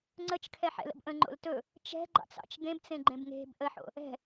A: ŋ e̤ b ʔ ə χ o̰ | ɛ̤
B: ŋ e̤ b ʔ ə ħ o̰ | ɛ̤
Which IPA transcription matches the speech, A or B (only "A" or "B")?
B